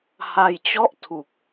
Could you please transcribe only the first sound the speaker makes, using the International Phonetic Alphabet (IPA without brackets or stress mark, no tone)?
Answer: h